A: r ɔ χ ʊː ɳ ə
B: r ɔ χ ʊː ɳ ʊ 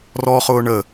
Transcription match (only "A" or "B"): A